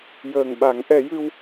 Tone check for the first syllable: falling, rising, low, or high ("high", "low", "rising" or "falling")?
low